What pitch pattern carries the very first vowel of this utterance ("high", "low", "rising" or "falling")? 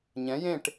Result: rising